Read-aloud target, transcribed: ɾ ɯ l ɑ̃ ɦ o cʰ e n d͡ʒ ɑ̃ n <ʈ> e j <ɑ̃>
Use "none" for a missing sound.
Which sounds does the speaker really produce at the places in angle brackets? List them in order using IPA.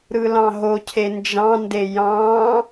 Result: d, ɑ̃

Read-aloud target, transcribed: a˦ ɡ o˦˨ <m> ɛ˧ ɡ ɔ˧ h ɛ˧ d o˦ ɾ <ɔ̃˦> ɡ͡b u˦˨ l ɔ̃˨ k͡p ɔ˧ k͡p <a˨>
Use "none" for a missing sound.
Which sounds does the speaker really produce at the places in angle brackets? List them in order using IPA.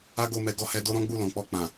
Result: m, ɔ̃˦, ã˨

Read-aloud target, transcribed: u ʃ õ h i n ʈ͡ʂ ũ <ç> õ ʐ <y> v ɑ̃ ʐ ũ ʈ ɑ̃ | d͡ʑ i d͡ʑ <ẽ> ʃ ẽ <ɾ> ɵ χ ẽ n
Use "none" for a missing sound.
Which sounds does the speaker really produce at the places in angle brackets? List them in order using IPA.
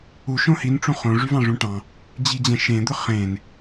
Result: χ, y, ɛ̃, d̪

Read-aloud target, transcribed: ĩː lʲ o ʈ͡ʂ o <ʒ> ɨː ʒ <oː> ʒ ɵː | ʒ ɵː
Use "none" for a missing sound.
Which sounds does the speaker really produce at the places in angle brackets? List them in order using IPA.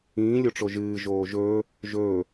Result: ʒ, oː

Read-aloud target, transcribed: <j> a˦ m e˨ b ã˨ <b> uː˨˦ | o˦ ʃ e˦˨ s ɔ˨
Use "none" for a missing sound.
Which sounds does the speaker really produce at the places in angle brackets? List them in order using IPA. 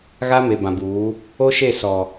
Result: ɣ, b

